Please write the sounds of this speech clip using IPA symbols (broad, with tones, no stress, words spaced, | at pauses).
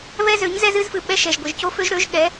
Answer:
βɛ˦zø˨˦ɲzɛ˦z ɨ˦zfɨ˨ ɓɛ˦ʃɛ˨ʒ ɡʷɨ˨ʒco˦fø˦ʒɾø˨˦ʒ ɠɛ˨˦